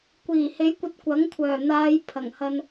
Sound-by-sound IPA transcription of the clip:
kʷiː˨˩he˨˥jkʷɐ˧t̚ kʷɐ˨˥ŋ kʷʰœː˨˩n̪aː˨˧j pʰɐ˨˩ŋhɐ˧n

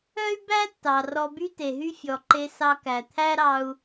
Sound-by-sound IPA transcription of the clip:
œ˥y̯bæ˥ tːɑ˩rɔ˧ by˥te˩ɦy˥ fʲɔ˩ǃe˧ sɑ˧kæ˩t̪ʰæ˥ɾɑ˧u̯

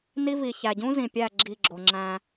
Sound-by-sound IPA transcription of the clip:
ni˦vi˨ çæ˨ɟũ˦zĩ˨pʲæ˦˨ ɡ͡ǁi˦˨ɡ͡ǁo˨ ŋ͡ǁæ̃˦

